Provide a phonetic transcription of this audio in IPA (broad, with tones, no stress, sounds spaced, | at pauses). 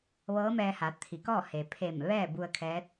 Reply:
ʋ ɤː˧˥ m ɛː˧ h a˩˧ t̪ʰ i˩˧ k ɔː˥˨ h e˩ pʰ e˧˩ m ʋ ɛː˥˨ b u˧ ə̯ kʰ ɛː˧˥ t̚